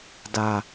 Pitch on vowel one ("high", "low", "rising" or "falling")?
low